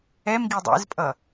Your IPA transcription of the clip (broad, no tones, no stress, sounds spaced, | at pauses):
ɛ m ɡ i dˤ ḛ z pʼ ʌ